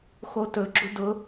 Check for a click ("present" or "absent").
present